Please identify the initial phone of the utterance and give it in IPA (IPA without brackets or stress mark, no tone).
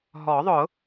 ɦ